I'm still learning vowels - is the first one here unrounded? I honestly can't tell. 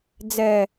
yes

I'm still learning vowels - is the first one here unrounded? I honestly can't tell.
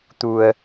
no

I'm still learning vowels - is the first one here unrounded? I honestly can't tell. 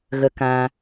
yes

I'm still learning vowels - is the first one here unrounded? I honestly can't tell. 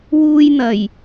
no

